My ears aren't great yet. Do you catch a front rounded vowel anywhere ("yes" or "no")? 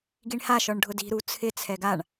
no